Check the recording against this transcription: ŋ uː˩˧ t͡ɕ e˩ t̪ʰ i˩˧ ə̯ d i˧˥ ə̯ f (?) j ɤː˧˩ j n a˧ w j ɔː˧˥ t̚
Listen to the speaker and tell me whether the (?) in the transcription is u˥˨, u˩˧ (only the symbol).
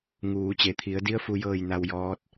u˩˧